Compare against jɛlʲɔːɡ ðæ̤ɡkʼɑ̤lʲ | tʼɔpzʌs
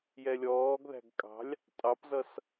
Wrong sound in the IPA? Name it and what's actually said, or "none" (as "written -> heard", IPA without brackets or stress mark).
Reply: ɔ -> ɑ